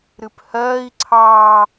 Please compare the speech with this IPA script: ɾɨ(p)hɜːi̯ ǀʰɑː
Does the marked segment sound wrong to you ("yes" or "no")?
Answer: no